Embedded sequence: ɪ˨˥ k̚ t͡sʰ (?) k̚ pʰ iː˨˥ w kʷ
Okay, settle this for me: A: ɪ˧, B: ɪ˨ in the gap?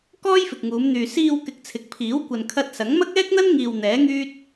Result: B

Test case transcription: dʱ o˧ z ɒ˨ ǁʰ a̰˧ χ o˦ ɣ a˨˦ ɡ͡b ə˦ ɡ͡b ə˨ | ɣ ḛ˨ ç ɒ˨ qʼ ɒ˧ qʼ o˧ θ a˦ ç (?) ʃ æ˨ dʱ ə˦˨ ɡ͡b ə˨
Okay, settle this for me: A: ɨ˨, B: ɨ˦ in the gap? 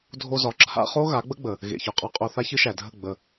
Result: B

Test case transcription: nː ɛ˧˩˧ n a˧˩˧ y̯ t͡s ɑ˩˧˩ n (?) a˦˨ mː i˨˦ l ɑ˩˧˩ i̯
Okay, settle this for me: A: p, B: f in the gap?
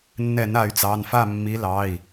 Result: B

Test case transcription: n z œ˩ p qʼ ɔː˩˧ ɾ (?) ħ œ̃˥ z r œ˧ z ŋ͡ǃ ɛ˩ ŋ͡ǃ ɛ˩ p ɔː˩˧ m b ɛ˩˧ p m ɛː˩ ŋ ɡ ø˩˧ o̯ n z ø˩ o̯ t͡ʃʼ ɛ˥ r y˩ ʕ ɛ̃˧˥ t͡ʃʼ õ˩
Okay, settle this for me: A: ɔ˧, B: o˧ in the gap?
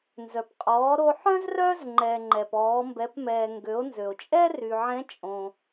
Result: B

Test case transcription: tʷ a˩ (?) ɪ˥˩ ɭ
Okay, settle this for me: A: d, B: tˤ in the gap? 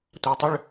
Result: B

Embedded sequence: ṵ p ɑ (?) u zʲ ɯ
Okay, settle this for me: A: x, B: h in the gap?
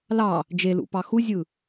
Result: A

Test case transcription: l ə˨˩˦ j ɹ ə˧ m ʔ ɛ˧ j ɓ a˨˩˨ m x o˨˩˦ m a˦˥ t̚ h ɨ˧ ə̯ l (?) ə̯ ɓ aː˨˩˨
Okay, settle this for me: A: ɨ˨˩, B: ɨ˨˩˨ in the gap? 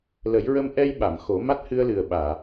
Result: A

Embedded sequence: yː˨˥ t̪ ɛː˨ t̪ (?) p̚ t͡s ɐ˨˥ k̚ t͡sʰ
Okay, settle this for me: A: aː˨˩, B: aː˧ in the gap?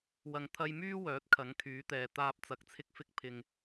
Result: B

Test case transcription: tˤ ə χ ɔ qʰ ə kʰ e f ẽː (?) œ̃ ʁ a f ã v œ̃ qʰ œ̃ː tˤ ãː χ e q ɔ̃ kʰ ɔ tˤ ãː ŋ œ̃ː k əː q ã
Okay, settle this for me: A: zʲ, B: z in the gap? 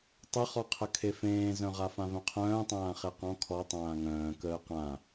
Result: B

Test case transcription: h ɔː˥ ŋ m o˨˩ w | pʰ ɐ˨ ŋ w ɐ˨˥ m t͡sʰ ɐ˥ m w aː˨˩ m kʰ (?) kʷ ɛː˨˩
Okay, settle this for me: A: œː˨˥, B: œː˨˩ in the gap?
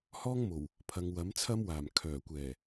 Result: B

